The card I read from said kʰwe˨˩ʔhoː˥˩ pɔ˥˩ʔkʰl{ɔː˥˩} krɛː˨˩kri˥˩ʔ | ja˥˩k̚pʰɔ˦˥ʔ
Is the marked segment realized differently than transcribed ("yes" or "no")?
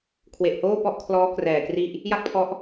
yes